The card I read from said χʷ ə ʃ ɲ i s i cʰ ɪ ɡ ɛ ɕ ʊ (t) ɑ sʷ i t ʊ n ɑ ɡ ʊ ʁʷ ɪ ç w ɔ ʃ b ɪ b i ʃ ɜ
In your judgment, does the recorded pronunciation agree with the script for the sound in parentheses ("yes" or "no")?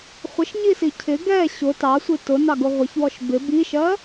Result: yes